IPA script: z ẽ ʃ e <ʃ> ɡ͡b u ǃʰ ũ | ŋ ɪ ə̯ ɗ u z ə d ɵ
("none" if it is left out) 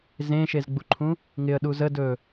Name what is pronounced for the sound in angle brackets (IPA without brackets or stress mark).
z